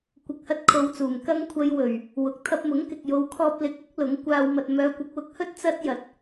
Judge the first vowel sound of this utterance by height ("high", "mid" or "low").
high